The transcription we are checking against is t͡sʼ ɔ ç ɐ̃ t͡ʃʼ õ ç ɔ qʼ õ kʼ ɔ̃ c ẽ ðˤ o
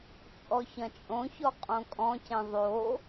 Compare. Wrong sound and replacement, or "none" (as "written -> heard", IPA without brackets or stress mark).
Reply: none